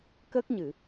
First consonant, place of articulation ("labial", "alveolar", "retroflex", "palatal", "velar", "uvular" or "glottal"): velar